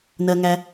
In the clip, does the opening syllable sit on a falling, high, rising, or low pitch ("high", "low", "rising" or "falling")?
low